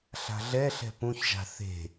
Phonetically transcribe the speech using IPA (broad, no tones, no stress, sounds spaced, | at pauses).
ɬ a̤ ɮ ɛ ɬ ɛ̤ p ũ ç ʒ a̤ θ e̤